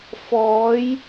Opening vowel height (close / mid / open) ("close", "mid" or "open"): mid